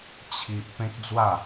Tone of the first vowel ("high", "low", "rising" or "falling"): high